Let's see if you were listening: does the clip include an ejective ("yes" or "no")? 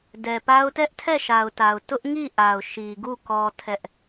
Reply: no